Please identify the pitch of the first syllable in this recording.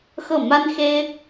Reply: falling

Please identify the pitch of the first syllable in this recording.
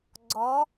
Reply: rising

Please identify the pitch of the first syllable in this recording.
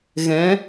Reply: rising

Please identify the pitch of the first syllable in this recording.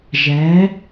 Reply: rising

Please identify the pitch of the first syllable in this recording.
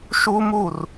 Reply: high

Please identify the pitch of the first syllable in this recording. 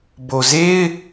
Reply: low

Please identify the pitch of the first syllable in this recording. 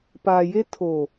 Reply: low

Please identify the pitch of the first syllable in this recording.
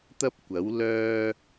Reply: high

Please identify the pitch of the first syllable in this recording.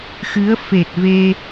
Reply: rising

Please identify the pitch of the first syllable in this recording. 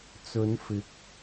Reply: rising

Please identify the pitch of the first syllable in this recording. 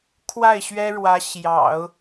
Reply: falling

